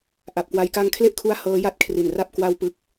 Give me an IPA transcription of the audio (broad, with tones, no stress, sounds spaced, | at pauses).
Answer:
ʔ a˨˩ p̚ k w a˧ j k a˧ ŋ kʰ l e˥˩ ʔ kʰ u˦˥ a̯ h ɤː˦˥ j a˥˩ t̚ kʰ r i˨˩ n r a˥˩ p̚ k w a˧ w p ɯ˦˥ k̚